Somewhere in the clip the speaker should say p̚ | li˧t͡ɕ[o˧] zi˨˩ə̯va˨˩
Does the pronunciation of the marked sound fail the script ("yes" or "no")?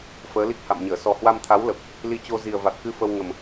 no